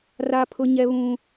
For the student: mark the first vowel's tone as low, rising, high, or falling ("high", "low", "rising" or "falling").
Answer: high